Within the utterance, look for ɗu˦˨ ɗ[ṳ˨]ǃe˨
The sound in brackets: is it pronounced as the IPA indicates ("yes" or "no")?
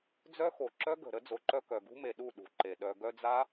yes